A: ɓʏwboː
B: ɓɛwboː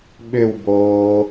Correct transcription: A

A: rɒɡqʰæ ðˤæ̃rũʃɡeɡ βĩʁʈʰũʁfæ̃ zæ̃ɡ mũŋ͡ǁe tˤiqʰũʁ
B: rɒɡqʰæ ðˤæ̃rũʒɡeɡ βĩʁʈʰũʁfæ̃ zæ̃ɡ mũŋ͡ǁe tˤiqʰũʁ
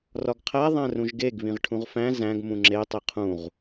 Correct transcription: B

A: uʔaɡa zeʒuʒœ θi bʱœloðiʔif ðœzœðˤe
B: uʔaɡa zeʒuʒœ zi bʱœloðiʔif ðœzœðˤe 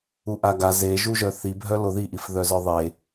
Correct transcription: A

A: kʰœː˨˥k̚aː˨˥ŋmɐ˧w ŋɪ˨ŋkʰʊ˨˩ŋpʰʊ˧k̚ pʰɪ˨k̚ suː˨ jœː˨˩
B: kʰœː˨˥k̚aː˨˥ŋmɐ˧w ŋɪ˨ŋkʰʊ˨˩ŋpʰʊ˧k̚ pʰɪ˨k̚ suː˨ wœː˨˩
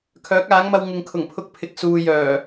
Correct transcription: A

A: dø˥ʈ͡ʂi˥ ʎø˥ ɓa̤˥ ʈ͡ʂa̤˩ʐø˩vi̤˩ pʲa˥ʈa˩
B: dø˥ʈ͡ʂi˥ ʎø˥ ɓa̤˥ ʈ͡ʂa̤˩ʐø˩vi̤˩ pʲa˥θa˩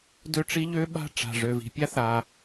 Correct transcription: B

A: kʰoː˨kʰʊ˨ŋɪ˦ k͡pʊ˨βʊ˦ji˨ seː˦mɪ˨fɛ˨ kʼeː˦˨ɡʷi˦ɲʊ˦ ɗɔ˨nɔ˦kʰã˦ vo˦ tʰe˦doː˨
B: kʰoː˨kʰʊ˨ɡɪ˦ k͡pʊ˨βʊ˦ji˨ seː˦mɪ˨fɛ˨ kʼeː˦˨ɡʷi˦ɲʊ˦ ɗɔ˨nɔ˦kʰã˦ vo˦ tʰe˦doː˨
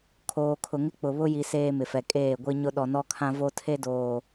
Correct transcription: A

